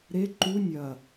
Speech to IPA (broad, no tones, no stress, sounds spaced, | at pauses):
ɾ e ǃ u nʲ ɐ